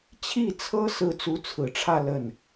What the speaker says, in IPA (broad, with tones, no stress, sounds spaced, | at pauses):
t͡ɕʰ i˥˩ t͡sʰ ɤ˥ s ɹ̩˥˩ t͡s u˧˥ t͡sʰ ɹ̩˨˩ ʈ͡ʂʰ ä˥˧ l ə˥˩ n